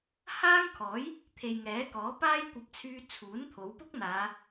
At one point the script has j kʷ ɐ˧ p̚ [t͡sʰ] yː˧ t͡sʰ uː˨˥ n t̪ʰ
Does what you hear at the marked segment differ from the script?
no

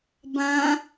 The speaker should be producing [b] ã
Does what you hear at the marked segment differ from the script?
no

